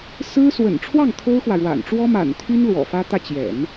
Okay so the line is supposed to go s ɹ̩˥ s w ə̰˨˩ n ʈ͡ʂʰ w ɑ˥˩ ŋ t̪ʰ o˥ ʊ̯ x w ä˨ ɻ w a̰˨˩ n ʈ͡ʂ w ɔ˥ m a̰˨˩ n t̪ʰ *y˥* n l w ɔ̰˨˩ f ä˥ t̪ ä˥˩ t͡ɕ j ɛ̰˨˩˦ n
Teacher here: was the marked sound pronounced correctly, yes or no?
yes